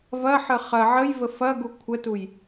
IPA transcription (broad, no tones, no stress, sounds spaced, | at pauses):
v ɐ ħ ə χ ɐ ʕ ə j v ə f ɐ ɡ u kʷʰ ə t u j